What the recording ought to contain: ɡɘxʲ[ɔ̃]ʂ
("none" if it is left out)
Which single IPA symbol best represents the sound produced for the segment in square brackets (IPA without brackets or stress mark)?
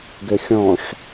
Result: ɔ̃